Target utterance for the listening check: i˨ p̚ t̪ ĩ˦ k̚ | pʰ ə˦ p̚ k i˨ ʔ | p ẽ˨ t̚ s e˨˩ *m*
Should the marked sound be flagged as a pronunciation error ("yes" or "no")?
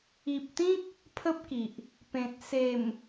no